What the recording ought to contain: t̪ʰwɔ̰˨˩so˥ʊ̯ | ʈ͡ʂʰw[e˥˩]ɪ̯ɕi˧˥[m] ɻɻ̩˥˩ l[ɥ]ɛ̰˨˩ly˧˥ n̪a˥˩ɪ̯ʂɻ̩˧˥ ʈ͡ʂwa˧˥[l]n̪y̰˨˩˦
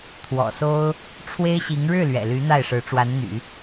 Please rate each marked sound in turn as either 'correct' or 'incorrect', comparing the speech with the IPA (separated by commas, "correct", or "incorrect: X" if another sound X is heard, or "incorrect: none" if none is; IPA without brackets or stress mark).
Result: incorrect: e˥, incorrect: ŋ, correct, incorrect: n